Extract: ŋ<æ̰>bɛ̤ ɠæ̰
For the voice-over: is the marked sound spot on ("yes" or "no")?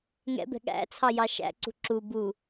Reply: no